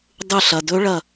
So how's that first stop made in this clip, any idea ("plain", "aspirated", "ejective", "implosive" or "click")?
plain